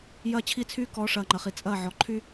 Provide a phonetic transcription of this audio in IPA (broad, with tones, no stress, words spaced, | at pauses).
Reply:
jɐː˦t͡ɕʰi˦t͡sʰyː˦ kɔ˨˦ʂɐː˨ ŋ͡ǃɐ˨χi˨t͡sʼɐː˦˨ʕɔ˨ ǃʰy˦